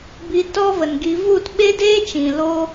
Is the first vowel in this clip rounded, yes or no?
no